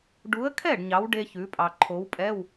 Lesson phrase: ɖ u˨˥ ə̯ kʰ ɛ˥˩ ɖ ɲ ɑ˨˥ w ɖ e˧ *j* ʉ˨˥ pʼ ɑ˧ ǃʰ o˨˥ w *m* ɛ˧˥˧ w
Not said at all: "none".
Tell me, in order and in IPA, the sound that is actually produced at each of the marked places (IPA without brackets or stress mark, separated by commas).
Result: ç, pʼ